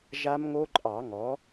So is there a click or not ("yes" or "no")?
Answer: yes